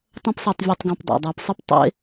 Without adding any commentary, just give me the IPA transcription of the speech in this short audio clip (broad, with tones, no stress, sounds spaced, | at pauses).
tˤ ɐ̃˦ p s e˨ tˤ vʲ ɛ˨ tˤ ɡ ã˨ p dˤ a̰˩ dˤ a˨ p sˤ ɨ˥ p tˤ ḛ˦